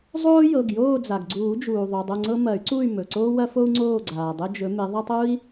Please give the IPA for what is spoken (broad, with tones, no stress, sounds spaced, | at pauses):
zˤ oː˦ j ɤ˩˧˩ ɡ j oː˦˨ d͡z a˩ ɡ ɡ͡ǀ uː˨˩˦ d͡ʒ uː˩ ðˤ u˩˧˩ dˤ o˦˨ ŋ͡ǀ ɤ˦ m ɐ˨˩˦ y̯ ǀ u˦˨ y̯ m ɵ˩˧˩ ǀ oː˦ w ɐ˦ f o˦ u̯ ŋ͡ǀ oː˦˨ ɡ͡ǀ aː˩ dˤ ɵ˦ d͡ʒ ɵ˨˦ m ɪ˨˦ ðˤ a˦ tˤ u˦ i̯